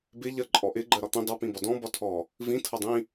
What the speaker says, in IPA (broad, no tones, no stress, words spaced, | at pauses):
bɪ ʎɜǃʼɔʔɪ ɡ͡ǃɜɾɒt̪ĩ dˤʌ pĩbɒdɔ̃ bɒtʰɔ | vĩ tʰʌdˤĩ